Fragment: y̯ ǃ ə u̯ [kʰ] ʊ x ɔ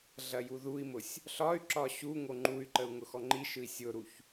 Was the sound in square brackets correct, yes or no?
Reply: no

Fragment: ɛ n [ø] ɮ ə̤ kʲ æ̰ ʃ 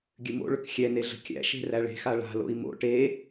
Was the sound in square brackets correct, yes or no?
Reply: no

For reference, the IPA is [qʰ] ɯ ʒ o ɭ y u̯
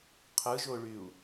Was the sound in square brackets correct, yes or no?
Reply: yes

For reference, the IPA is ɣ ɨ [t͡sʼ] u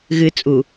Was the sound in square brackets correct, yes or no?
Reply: yes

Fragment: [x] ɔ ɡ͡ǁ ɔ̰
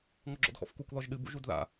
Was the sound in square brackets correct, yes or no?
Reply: no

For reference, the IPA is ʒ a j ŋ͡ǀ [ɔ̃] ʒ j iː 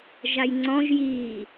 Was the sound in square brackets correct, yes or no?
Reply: yes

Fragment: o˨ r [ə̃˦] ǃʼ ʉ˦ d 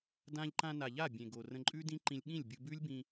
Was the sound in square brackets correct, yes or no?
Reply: no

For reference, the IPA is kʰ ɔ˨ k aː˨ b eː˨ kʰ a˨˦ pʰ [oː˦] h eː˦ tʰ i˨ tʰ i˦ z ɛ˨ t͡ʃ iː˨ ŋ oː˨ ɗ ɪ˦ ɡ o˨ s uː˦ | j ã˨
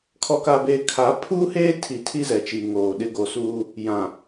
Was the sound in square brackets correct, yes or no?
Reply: no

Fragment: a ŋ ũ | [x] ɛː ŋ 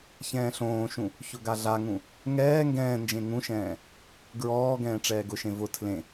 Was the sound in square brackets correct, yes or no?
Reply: no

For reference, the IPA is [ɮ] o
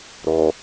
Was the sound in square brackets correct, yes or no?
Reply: no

